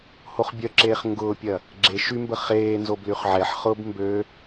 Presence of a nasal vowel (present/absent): absent